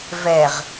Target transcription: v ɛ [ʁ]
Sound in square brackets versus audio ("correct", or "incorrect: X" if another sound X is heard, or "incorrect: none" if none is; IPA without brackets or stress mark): correct